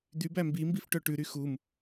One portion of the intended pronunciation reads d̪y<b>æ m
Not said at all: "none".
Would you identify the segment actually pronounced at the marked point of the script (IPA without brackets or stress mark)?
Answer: b